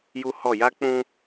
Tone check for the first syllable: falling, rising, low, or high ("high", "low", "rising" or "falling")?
high